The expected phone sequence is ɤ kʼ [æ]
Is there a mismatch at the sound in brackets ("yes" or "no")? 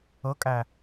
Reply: no